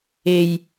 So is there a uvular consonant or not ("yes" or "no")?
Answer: no